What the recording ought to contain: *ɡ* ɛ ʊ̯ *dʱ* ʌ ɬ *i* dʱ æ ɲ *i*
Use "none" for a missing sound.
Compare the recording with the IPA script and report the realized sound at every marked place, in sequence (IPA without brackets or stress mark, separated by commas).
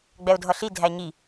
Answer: ɡ͡b, dʱ, i, i